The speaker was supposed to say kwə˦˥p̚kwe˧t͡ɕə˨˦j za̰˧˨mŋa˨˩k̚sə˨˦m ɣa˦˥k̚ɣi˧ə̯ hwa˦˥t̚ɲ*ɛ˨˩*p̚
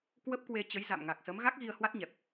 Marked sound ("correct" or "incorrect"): correct